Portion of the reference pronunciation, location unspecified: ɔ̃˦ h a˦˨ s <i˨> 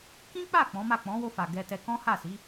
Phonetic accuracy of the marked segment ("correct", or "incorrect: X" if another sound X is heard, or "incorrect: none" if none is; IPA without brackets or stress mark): incorrect: i˨˦